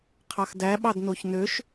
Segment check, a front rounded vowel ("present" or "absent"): present